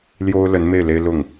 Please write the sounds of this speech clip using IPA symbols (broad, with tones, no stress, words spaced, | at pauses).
ljo˥ʊ̯lə˧˥n me˥˩ɪ̯le˥ɪ̯lʊ˥˩ŋ